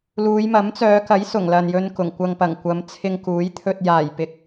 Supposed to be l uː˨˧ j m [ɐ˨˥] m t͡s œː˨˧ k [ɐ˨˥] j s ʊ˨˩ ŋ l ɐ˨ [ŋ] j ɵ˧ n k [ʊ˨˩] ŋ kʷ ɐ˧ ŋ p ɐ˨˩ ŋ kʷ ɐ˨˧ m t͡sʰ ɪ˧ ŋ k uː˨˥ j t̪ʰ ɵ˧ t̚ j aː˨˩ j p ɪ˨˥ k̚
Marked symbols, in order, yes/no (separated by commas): yes, yes, no, yes